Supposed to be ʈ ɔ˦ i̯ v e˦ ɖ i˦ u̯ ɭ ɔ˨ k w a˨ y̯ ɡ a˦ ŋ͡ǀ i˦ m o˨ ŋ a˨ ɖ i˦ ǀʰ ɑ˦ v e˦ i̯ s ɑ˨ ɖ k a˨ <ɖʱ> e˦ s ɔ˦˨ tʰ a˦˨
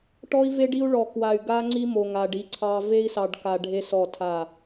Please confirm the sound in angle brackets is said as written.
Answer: yes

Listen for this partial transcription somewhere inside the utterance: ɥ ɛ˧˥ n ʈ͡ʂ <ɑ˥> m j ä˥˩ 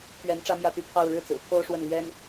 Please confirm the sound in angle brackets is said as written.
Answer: no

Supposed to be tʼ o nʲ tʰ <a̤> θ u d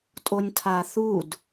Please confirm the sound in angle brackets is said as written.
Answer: no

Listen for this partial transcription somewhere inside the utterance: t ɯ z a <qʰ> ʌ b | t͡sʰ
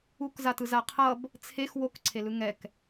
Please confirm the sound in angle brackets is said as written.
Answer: yes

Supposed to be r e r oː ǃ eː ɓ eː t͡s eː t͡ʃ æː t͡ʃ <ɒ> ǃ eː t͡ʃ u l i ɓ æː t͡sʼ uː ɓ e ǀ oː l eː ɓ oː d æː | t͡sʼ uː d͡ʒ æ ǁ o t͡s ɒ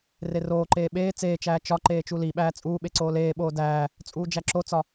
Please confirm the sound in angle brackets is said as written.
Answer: yes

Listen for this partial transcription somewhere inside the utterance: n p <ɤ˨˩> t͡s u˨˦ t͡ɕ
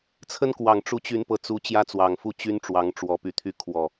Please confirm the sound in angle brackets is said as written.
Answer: yes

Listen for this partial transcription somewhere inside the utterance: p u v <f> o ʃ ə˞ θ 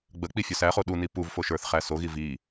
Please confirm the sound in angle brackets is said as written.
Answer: yes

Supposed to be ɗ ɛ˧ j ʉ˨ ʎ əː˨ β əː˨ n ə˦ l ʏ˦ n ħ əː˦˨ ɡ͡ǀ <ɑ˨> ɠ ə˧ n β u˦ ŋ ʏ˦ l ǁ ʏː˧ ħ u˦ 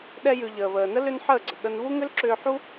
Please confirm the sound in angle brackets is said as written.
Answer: no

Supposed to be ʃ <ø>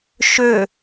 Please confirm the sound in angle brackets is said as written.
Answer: yes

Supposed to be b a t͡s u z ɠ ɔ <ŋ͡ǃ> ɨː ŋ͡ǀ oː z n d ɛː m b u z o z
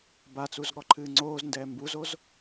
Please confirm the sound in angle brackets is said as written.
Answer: no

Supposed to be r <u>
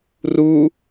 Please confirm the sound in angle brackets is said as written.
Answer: yes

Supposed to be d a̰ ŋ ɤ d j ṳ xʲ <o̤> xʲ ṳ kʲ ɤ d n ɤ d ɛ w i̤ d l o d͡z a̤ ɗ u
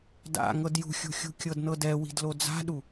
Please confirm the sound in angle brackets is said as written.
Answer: no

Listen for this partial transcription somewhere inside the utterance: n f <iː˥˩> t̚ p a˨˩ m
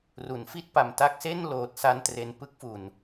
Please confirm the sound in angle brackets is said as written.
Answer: no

